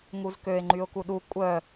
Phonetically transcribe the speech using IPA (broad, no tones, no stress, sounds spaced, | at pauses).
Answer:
ŋ u z k ø ɪ̯ ŋ͡ǃ y ʊ̯ k u ɗ u kʷʼ œ